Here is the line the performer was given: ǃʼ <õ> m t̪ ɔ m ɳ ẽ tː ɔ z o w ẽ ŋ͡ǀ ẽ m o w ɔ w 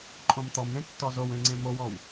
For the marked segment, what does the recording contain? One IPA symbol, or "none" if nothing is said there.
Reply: õ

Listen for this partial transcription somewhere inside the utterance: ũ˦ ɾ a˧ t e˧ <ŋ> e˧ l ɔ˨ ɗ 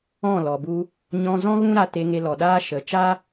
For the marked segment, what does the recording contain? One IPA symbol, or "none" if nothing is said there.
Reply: ŋ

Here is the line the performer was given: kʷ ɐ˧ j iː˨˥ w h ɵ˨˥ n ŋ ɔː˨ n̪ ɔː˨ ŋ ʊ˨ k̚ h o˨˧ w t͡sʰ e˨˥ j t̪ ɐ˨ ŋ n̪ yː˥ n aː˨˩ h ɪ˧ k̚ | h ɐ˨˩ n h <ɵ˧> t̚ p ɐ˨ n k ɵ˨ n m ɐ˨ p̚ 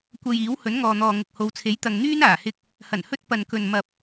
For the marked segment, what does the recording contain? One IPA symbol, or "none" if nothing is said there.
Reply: ɵ˧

